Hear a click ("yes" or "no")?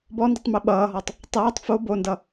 no